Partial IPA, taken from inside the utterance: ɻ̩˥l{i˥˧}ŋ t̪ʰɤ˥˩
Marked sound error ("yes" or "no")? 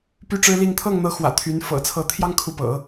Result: no